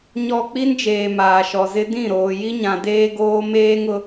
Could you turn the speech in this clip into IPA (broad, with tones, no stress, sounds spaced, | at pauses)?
ɲ ɔ˨ k͡p i˦ n d͡ʒ eː˨ m aː˨ ʃ ɔ˨ z ɪ˦ d ĩ˦˨ ɾ oː˨ j i˦ ɲ ã˨ d eː˦ ɡ oː˦ m eː˦ ŋ ʊ˦